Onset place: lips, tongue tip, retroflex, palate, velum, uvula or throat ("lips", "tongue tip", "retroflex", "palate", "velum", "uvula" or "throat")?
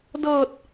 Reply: tongue tip